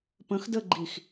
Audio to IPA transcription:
p ə̃ x d ə ɡ͡ǃ i x

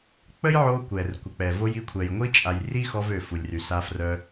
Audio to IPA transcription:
k͡p ə˥ j ʕ o˧ kʷ ɛ˩ r kʷ ə˩ k͡p ɛ˩ v o˧ j i˧ kʷʰ ɛ˩ j ŋʷ i˥ t͡ʃʼ a˩ j r i˥ x ɔ˧ v ø˩ f u˩ lʲ r y˩ s a˧ f r œ˧

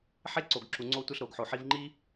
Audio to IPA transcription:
ħ e˥ ǀ o˩ ɡ ǁ u˩ ŋ͡ǀ o˧ tʷ e˧ ɬ ɾ o˩ ɡ ħ o˩ ħ i˧ v ŋ͡ǃ i˥

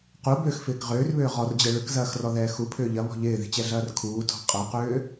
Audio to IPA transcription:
q u b ʏː x f ɪː k ʁ ʏː r β ʏː ʁ ɔ r d͡ʑ ɛ ɭ ʏ k z ɐː x r ɔ ð ɛː x u pʰ ʏː ʎ ɐ β ɔ̤ ʎ ɪː ð i̤ t͡ɕ ɛ ɮ ɐː r kʰ uː tʰ ɔ̤ qʼ ɐ q ʏː

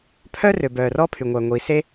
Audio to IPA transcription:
pʰ œ˥ r ø˩ b œː˩ r ɔ˥ pʰ y˩ ŋʷ æ˩ ŋʷ iː˩ s e˥

